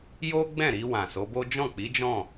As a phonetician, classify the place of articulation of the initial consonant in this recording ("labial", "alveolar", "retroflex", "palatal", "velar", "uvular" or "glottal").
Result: palatal